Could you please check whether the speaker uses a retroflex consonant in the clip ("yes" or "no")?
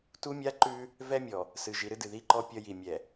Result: no